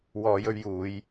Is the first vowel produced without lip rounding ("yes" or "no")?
no